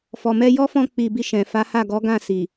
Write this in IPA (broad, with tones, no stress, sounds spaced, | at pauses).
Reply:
f ɔ˨ m ɛ˧ j ɔ˦ f ɔ̃˧ k͡p i˨ b i˧ ʃ ɛ̃˨ f a˨˦ h a˦˨ ɡ ɔ˨˦ ɡ ã˦˨ s i˨